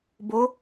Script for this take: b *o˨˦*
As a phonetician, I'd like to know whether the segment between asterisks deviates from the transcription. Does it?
no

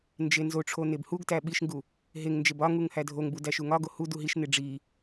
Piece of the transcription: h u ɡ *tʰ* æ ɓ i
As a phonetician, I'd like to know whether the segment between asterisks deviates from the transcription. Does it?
yes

